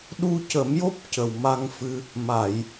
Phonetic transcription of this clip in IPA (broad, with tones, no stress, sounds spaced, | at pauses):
ɗ u˧ c ə˨˩˦ m j o˦˥ p̚ c ə˨˩ w m a˧ ŋ f ɨ˧ | m a˨˩˨ j